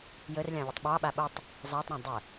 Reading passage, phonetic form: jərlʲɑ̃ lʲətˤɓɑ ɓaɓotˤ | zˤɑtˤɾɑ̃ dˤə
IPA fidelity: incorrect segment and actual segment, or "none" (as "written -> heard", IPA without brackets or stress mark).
none